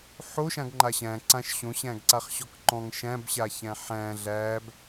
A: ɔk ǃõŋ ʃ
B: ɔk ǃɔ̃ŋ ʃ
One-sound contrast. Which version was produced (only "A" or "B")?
B